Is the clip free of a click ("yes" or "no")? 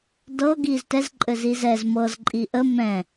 no